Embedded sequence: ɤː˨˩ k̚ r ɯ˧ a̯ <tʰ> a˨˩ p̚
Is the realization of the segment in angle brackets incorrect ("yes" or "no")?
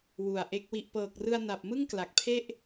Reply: yes